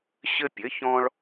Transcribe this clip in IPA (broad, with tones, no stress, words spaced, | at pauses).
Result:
ɕɘ˦ pʲɘ˨˥çɔ̃˦ɭ